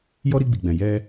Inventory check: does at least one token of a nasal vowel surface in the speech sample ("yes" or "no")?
yes